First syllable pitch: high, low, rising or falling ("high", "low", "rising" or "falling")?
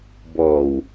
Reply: low